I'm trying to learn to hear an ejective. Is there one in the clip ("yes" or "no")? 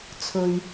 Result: no